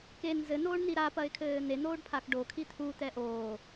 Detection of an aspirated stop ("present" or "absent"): present